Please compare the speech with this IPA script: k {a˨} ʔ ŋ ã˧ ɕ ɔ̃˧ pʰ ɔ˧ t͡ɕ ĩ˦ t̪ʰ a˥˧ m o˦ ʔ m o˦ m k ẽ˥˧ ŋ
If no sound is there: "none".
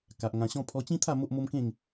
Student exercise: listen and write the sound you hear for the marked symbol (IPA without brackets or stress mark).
a˨